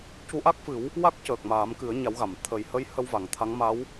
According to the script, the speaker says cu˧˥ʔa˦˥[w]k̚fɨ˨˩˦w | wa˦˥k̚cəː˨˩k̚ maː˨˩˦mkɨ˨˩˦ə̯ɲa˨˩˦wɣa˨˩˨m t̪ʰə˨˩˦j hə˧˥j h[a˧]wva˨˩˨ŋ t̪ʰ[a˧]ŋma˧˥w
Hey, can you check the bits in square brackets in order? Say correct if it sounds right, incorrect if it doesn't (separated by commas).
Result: incorrect, incorrect, incorrect